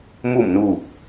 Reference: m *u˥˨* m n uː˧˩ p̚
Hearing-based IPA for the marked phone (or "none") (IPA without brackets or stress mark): u˧˩